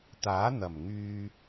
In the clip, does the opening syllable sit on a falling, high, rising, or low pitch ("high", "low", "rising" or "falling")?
rising